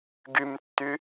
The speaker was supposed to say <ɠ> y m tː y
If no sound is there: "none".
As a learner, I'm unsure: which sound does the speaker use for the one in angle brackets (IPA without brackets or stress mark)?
ɡ